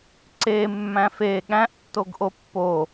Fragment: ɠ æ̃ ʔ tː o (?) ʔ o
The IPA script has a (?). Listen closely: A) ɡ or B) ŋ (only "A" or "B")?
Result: A